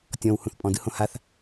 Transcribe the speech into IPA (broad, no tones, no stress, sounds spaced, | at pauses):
tʲ ɔ̃ w h ũ θ pʼ ɔ̃ d ɯ h õ h a θ